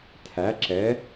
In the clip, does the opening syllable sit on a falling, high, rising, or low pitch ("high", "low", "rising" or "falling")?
rising